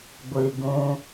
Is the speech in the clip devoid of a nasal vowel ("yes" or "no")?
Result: no